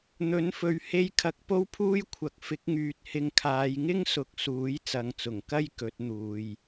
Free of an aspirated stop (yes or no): no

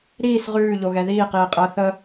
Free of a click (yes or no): yes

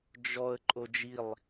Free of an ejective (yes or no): no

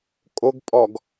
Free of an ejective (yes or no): no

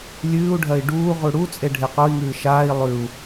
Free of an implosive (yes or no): yes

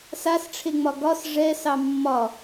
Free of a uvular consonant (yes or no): yes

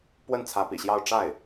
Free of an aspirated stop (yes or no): no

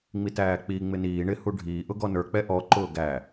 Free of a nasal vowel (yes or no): yes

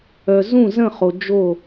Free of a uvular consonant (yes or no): no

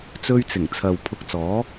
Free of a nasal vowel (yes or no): yes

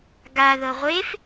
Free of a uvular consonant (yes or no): no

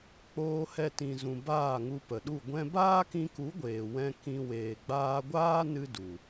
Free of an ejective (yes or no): yes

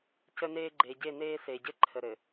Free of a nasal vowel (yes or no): yes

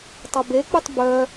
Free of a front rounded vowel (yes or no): no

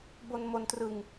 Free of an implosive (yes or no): yes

